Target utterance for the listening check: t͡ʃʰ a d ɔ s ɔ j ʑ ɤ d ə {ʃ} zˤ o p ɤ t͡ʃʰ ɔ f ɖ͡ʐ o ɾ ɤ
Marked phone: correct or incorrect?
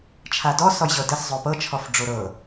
incorrect